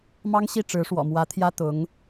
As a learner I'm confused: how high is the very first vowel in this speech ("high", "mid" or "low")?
low